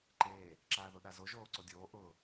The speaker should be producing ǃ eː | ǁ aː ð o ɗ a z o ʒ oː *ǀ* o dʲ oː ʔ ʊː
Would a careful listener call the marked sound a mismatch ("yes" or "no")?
no